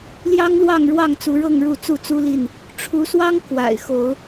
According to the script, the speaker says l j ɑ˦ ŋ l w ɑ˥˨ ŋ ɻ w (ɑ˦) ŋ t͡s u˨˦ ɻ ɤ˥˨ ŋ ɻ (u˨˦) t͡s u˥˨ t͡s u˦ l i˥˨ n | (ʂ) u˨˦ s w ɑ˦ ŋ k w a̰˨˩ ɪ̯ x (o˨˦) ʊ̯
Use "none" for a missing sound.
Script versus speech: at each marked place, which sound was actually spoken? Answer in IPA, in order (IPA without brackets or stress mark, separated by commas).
ɑ˥˨, u˥˨, ʈ͡ʂʰ, o˨˦